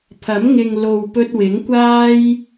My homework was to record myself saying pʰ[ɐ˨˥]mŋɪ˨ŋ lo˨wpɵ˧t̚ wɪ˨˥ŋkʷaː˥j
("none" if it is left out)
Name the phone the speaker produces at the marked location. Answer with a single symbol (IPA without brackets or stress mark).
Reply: ɐ˨˥